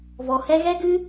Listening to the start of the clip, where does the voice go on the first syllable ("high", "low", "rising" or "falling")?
low